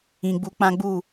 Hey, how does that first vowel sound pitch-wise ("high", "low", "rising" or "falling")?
low